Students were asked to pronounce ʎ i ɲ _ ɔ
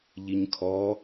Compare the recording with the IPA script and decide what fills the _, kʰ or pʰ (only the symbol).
kʰ